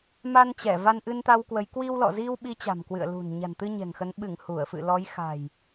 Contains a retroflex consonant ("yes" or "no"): no